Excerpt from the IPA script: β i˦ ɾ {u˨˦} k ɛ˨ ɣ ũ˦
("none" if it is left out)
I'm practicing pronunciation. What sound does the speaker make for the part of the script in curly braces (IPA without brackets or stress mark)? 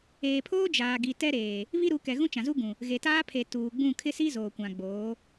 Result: u˨˦